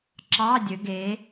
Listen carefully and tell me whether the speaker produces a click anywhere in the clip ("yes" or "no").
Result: yes